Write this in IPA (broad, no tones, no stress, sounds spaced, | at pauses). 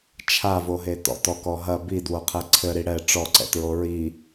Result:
t͡ʃʰ a v o ɦ e t ɔ̰ t ɔ k ɔ ɦ ɐ b i d w o qʰ ɛ ǀʰ ɘ ɾ i ɽ ɛ ʈ͡ʂ ɔ ǀ ɛ̰ t ɹ o ɹ i